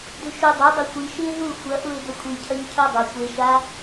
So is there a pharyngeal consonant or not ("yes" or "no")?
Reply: no